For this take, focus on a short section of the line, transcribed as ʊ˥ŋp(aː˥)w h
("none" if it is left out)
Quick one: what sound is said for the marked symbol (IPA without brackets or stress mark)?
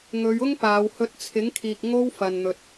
aː˨˧